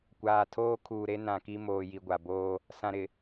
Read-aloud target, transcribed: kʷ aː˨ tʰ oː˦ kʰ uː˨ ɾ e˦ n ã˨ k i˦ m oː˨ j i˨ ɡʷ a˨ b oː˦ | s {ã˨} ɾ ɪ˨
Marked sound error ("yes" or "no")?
no